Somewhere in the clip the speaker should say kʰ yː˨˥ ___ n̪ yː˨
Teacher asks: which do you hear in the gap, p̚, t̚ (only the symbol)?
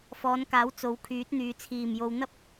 t̚